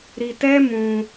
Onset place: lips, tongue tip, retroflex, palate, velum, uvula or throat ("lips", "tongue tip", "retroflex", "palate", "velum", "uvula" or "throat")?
tongue tip